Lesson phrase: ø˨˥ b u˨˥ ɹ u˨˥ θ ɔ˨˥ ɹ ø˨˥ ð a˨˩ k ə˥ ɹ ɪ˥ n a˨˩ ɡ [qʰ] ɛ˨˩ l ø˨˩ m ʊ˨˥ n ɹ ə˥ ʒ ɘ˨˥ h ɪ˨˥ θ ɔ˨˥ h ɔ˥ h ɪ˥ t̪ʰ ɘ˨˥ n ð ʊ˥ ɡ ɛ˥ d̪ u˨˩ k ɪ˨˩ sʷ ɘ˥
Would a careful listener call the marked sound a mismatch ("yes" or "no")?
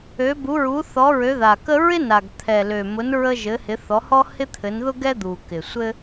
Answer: yes